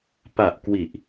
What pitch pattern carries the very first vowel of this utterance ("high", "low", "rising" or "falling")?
low